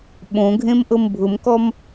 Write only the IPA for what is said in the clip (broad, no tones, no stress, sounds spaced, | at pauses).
ɓ õ ɡʱ ẽ m ʔ ɤ m bʱ ʊ m k ɔ m